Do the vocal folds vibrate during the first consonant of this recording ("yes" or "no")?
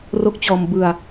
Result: yes